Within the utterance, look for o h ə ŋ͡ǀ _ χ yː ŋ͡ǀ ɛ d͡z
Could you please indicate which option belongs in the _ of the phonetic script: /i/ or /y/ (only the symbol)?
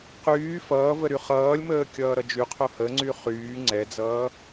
y